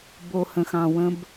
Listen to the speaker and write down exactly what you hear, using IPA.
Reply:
b o˨ h ə̃˨ x ɑ̃˨ w ə̃˦ b

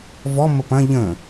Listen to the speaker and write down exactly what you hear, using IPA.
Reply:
v ɔ m ə p ɐ̃ ʎ ə̃

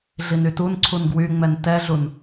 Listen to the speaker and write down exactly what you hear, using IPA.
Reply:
ɮ i n y t u n ǀʰ u n ɡ w y ŋ͡m ɛ n t ɛ ɮ u n

